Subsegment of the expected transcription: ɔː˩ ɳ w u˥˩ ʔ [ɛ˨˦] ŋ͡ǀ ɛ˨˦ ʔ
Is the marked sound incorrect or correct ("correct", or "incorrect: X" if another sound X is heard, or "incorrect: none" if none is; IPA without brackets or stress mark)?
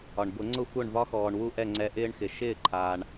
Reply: incorrect: ɛ˥˩